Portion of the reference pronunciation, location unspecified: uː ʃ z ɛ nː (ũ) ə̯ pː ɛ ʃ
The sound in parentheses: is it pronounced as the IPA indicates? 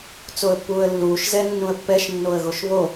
yes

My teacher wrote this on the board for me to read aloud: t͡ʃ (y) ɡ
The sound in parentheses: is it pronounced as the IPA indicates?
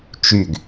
yes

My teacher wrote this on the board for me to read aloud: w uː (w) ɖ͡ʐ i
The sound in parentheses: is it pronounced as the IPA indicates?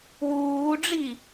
no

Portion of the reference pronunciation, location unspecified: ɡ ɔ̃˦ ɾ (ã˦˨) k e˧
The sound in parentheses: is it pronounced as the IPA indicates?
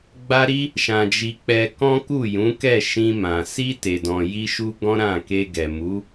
yes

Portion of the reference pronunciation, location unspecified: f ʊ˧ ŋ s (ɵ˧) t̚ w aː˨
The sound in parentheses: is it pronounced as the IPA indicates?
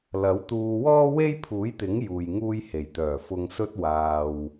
no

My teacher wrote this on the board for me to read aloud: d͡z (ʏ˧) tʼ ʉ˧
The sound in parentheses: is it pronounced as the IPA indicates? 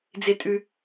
no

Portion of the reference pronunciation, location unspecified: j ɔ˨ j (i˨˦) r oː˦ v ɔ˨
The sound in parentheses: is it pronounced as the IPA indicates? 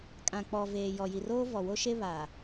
no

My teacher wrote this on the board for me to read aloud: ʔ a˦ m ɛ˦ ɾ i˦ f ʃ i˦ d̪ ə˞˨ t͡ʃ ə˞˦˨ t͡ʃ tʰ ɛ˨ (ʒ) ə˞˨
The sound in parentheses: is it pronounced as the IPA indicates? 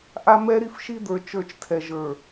yes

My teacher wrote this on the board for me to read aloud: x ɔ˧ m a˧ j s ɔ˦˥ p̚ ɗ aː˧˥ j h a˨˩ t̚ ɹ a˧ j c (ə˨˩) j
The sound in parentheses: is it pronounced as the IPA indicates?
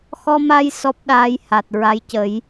no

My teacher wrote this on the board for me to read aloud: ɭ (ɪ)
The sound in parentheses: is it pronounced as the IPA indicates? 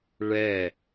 no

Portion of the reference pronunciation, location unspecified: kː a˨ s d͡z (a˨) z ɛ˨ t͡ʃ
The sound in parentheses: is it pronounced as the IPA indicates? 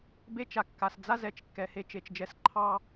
no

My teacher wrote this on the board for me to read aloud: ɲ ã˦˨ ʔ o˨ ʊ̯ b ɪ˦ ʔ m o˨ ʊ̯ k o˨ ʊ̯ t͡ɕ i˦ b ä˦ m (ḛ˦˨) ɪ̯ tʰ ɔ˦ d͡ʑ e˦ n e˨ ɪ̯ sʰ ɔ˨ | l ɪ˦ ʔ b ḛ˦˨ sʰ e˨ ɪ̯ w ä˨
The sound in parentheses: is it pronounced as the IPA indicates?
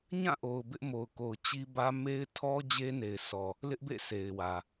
no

